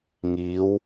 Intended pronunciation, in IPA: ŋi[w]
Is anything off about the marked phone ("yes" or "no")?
no